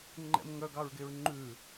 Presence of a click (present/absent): present